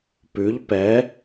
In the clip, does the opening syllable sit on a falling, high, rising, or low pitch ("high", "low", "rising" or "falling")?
rising